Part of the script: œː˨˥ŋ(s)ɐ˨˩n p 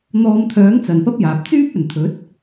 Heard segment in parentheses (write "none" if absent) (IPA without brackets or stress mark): t͡s